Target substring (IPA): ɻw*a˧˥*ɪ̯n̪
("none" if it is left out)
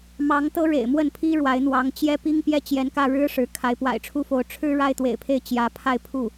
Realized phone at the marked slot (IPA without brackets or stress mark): a˧˥